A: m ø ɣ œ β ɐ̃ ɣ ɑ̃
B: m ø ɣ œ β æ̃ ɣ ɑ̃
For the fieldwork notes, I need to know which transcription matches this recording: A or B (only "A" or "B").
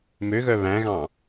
B